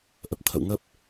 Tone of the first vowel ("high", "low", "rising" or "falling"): low